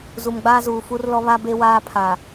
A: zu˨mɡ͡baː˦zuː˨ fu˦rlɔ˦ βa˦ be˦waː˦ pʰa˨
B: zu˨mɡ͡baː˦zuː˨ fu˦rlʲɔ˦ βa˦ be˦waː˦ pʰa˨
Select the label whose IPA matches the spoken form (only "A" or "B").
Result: A